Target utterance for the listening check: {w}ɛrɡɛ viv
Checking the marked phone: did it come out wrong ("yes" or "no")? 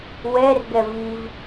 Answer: no